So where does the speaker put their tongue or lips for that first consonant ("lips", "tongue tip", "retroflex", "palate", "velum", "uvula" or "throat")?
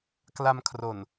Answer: velum